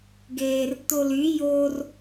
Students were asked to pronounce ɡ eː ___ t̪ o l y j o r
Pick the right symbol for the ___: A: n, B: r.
B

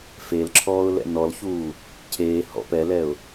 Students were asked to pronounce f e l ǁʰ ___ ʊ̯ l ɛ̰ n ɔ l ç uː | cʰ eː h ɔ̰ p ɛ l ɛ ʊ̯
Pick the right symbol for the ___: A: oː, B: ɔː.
B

